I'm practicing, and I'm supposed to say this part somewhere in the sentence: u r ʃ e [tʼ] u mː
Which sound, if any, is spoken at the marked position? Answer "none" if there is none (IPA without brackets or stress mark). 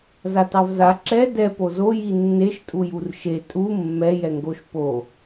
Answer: tʼ